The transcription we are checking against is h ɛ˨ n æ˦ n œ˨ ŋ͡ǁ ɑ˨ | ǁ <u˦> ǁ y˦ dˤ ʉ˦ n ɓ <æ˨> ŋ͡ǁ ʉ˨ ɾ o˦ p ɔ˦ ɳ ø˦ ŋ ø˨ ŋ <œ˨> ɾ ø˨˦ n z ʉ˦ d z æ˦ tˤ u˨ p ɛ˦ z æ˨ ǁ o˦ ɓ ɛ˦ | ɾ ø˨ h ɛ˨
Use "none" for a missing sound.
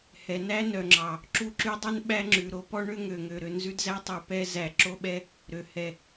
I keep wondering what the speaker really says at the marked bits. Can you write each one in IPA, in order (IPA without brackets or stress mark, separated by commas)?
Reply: u˦, æ˦, ø˨